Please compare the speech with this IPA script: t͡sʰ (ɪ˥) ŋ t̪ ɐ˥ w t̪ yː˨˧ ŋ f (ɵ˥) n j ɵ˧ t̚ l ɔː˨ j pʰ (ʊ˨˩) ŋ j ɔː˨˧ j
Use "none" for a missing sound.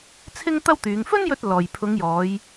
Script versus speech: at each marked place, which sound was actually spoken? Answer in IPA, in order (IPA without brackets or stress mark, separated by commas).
ɪ˥, ɵ˥, ʊ˨˧